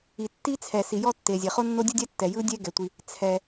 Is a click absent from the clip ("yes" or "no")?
yes